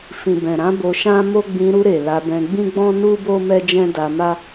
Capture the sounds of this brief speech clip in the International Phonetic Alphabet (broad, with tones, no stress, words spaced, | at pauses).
fĩ˨bɛ̃˨ɾã˧ bo˧ʃã˦mo˦ ɡ͡bĩ˧ɾu˧ɾe˨ la˧bɛ̃˧ ɡ͡bĩ˦ɡ͡bɔ̃˦ nu˦bo˦ mɛ˦d͡ʒɛ̃˦da˧ma˦